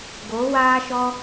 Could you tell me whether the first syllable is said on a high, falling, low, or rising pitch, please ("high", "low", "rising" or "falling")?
rising